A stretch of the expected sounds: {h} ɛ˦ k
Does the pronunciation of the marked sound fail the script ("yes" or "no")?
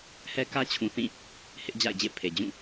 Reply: no